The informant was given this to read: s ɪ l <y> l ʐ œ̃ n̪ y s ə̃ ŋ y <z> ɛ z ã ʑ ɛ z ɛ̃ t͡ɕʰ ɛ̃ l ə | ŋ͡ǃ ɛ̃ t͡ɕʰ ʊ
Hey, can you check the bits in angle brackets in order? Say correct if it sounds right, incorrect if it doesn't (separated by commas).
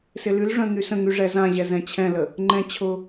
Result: correct, incorrect